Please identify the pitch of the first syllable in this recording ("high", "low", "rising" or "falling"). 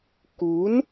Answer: rising